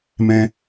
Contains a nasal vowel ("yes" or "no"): yes